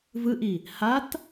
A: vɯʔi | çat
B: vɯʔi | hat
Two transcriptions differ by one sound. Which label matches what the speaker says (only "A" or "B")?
B